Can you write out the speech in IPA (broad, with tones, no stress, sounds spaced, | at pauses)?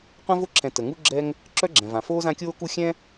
qʷ ɛ̃˥ v o˥ ǁʰ ɛ̃˨ t ə˩ ŋ u˦ ɡ͡ǁ ɛ˥ ŋ | ǁ œ˥ ɡ͡ǁ ɛ̃˩ v ã˩ f oː˥ z ã˦ kʲ oː˥ k u˦ xʲ ɛ̃˥